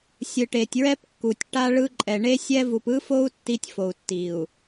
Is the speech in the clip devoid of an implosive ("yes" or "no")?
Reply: yes